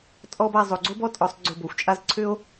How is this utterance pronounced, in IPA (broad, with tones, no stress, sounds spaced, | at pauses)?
tʼ ɔ˥ b a˧ zˤ o˩˧ ɡ͡ǀ o˥ b ɔ˥ tʼ ɔ˩˧ sˤ ɡ͡ǀ ʊ˧˩ b o˧ xʷ t͡ʃʼ a˥˧ z ǀʰ ʏ˥ o̯